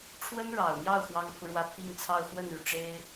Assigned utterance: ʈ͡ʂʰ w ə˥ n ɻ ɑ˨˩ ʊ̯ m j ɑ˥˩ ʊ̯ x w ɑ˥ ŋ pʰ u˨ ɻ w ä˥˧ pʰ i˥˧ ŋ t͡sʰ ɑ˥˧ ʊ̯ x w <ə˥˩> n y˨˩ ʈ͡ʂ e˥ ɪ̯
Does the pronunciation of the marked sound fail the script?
no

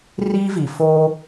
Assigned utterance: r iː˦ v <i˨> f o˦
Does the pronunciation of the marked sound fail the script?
no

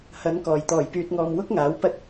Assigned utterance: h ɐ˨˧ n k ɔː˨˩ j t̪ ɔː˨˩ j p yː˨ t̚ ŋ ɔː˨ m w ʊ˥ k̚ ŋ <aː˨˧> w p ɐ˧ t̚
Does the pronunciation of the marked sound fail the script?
yes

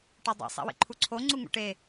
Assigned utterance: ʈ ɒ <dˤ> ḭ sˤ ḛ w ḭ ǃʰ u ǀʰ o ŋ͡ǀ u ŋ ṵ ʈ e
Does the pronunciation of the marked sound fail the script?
no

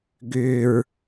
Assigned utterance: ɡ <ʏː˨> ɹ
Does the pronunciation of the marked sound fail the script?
no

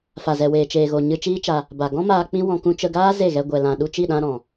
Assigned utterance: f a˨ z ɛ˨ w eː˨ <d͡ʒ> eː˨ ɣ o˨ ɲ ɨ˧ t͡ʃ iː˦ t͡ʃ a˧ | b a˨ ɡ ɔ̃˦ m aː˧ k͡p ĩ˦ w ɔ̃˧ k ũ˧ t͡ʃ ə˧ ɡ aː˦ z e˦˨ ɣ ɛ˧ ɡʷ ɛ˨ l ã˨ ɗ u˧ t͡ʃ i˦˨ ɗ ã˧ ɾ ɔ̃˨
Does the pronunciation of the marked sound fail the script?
yes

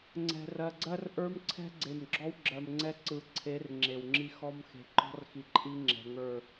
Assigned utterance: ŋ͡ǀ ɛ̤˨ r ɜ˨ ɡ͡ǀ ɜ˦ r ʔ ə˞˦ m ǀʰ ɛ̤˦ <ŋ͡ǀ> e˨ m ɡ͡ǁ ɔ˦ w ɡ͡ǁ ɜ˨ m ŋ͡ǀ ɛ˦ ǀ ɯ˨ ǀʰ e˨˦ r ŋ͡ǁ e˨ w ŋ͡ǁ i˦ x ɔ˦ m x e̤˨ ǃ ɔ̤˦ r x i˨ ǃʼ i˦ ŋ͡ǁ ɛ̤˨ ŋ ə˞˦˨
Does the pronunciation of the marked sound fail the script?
yes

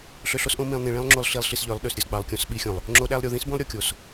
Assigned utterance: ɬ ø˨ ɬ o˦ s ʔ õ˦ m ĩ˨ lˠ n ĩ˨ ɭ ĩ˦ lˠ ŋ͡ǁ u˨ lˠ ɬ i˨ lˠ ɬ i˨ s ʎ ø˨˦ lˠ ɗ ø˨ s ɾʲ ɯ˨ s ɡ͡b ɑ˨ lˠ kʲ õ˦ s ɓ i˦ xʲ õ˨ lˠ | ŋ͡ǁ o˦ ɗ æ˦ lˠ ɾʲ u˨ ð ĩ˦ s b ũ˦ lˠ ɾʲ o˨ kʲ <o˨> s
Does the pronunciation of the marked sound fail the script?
no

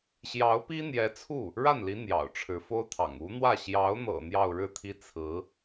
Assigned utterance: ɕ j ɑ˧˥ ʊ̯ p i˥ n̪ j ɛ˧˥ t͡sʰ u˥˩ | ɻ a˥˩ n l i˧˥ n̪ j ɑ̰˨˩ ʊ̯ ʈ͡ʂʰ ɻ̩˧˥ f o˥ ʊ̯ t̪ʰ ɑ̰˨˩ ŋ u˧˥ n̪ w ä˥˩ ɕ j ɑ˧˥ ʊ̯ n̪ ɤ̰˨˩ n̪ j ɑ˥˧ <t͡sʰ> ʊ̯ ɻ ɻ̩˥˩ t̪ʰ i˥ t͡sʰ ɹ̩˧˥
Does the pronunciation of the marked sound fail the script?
yes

